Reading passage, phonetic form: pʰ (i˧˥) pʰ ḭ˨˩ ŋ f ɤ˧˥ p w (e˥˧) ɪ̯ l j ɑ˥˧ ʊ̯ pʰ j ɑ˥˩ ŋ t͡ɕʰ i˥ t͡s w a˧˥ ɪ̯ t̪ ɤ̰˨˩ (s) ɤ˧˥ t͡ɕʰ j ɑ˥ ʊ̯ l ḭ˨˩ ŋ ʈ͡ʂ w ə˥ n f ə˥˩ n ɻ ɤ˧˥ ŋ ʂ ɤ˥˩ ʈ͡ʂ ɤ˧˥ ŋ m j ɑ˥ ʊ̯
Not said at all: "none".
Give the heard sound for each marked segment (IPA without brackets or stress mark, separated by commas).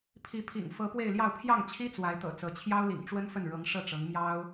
i˧˥, e˥˧, t͡s